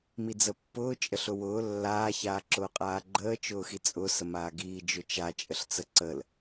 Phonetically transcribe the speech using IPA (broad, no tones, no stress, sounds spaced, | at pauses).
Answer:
m i d͡z ə pː ʊː t͡ʃʼ ə ɬ ʊ w ʊː lː aː ç aː ǁ ʊː qʼ aː ɡ͡ǃ əː t͡ʃ ʊː x i t͡sʼ ʊː s ə m aː ɡ iː d͡ʒ ʊ t͡ʃ a t͡ʃʼ ə ɬ t͡s ə ǀ ə l